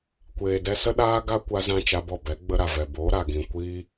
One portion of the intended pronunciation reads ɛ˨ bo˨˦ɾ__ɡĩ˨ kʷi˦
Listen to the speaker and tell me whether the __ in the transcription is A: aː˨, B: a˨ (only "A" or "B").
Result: B